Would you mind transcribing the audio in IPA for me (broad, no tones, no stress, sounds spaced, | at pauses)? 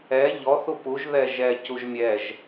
ɛ ʎ ɔ θ u p u ʒ ð ɛ ʒ ɛ c u ʒ mʲ ɛ ʒ